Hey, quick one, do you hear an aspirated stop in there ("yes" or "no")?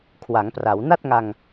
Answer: yes